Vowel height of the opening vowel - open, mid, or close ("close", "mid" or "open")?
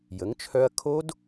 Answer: mid